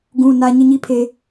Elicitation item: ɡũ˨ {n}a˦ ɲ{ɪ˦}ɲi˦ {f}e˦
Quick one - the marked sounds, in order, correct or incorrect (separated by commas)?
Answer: correct, correct, incorrect